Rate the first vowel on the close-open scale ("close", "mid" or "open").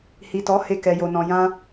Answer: close